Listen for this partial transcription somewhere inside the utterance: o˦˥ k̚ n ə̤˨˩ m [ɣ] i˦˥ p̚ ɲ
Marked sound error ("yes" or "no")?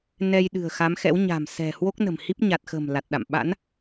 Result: yes